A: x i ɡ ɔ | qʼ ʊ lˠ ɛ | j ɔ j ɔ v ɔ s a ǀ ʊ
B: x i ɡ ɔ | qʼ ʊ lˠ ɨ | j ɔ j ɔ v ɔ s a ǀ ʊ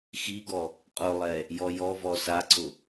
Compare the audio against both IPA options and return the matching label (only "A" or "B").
A